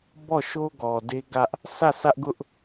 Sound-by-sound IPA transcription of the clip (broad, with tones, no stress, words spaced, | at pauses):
bɔ˦˨ʃo˦ɡɔ˨ de˦ɡä˦ʔ | sʰä˦˨ sä˦ʔɡʊ˦ʔ